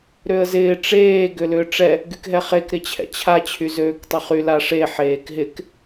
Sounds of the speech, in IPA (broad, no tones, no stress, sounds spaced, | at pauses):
ɾ ø ə̯ z ɪː ʈ͡ʂ eː ɡ ʏ l ʏː ʈ͡ʂ ɛ | ɡ y k ɦ ɛ χ e k ɾ ɪ t͡ɕʰ ɛ̰ t͡ɕʰ a t͡ɕʰ y z øː k tˤ ʏ χ y l a ʂ e ħ eː k ɦ ɪ k